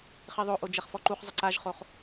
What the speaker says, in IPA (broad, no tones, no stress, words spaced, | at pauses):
χiðˤoʔo d͡ʒɛχfɔǃuχzˤɐ ǀaʒχoχ